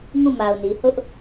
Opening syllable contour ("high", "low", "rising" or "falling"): falling